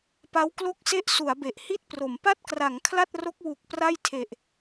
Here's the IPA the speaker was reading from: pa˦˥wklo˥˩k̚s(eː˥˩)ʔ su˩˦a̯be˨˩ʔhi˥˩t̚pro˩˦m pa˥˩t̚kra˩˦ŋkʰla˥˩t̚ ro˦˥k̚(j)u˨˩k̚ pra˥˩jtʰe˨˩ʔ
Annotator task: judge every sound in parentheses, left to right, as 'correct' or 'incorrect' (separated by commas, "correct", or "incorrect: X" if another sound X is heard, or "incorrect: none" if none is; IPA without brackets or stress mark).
incorrect: e˥˩, incorrect: w